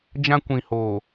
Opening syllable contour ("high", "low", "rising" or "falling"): high